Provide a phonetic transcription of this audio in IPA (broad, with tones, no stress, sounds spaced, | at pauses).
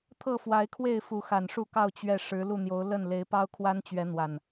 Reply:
t̪ʰ ɤ˥˨ f w a˨˦ ɪ̯ kʰ w e˥˨ ɪ̯ f u˨˦ x a˨˩ n ʂ u˥˨ k ɑ˥˨ ʊ̯ t͡ɕ ɥ ɛ˨˩ ʂ ɻ̩˨˦ l u˥˨ n̪ j o˨˦ ʊ̯ l ə˥˨ n l e˨˦ ɪ̯ p ɑ˦ ʊ̯ kʰ w a˦ n t͡ɕ ɥ ɛ˨˦ n̪ w a˨˩ n